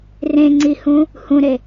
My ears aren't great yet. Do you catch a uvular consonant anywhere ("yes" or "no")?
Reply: no